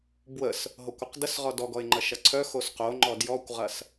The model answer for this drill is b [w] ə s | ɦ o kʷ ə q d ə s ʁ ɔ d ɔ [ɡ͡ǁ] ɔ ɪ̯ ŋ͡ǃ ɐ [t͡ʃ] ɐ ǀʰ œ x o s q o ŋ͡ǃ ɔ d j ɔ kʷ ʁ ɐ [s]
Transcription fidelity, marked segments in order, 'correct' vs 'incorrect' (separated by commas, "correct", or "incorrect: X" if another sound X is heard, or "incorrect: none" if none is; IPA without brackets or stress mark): correct, incorrect: ɡ, incorrect: ʃ, correct